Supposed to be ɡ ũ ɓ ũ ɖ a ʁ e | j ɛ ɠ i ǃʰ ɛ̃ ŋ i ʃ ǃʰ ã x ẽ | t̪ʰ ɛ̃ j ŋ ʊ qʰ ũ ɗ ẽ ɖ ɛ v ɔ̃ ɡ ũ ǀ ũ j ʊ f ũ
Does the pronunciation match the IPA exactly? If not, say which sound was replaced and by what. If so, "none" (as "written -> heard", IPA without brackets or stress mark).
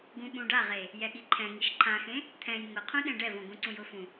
none